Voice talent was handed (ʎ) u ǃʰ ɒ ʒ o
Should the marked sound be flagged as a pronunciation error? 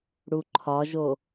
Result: yes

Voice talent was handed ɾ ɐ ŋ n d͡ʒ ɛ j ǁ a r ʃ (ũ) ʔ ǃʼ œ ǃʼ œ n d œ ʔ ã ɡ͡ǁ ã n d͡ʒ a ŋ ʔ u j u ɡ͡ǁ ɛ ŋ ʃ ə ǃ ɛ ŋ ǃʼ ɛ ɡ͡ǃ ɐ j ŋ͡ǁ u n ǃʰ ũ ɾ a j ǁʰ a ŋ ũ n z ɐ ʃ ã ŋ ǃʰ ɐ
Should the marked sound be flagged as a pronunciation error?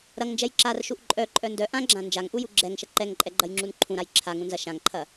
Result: yes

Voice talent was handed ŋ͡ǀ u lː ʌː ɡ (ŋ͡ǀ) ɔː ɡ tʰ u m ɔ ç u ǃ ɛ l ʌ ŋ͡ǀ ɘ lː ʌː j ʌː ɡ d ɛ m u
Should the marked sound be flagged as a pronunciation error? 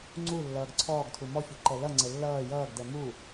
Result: yes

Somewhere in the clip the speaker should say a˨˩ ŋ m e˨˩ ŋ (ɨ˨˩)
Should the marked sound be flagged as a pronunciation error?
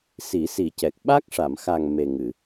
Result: yes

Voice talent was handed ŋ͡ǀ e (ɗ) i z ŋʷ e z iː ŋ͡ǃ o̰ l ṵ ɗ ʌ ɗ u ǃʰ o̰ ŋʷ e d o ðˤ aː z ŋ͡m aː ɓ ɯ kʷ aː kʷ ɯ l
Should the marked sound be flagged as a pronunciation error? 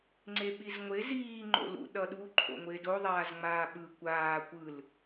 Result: yes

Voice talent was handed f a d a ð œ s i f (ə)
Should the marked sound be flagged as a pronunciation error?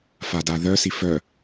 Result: yes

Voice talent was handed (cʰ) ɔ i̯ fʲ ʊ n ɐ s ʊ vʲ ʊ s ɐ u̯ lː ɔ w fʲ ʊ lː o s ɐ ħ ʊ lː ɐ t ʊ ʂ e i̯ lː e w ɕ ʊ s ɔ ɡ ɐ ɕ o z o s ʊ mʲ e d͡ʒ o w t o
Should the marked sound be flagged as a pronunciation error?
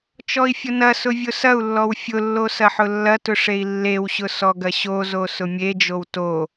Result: yes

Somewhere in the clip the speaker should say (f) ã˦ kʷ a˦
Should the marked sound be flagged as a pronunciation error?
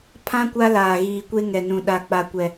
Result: yes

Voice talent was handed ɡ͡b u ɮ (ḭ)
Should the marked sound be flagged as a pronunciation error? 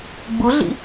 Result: no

